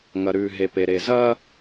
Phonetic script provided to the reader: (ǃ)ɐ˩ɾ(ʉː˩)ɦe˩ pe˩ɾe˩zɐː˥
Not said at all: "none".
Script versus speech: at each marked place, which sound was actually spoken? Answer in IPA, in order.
ŋ, ʉː˩

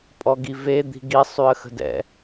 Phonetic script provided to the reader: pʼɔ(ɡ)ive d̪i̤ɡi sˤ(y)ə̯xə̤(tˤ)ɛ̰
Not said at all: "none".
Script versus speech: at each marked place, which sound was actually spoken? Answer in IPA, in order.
ɡ, y, d

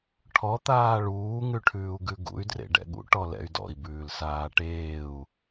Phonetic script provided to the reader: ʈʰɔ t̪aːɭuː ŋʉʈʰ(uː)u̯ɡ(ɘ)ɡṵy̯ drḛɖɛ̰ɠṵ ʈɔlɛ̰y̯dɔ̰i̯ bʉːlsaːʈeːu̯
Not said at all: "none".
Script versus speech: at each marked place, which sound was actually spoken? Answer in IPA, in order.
ʉː, ʉ

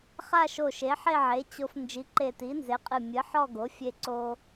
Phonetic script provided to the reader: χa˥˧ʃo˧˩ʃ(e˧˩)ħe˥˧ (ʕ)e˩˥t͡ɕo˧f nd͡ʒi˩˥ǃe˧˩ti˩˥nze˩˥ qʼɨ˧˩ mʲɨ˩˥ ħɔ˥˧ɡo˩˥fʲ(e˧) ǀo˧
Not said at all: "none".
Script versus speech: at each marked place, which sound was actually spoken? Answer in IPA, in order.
e˩˥, ʕ, e˧

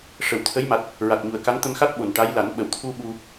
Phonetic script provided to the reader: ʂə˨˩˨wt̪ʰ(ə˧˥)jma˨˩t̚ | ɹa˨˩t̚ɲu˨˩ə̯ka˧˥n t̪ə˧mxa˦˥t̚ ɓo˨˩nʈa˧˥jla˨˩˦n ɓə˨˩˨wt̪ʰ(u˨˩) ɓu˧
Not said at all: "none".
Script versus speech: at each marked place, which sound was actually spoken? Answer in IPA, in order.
ə˧˥, u˧

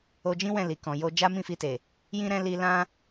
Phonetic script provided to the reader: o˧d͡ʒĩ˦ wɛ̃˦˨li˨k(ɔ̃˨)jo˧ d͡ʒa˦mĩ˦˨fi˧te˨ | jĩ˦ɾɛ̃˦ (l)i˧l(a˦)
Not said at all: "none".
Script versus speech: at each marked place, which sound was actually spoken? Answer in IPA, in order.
ɔ̃˨, l, ã˦

